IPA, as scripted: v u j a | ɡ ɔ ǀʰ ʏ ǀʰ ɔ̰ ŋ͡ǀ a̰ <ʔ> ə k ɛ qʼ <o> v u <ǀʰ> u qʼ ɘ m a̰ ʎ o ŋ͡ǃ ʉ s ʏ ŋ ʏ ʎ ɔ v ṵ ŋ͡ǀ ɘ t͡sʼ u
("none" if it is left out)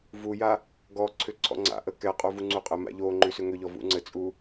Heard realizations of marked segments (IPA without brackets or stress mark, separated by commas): ʔ, o, ŋ͡ǀ